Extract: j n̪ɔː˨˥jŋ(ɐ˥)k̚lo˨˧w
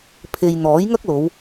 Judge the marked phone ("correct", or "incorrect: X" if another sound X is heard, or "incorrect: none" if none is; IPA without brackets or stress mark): correct